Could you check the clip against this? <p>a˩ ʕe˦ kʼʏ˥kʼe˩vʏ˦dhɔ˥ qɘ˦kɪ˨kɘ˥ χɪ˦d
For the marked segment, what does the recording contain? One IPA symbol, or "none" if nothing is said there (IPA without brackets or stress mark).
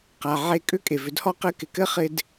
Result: q